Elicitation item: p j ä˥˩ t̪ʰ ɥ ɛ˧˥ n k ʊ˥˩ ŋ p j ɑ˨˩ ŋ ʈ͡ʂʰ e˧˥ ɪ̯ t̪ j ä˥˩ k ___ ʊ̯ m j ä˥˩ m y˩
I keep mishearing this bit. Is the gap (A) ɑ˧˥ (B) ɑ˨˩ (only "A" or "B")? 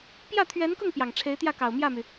B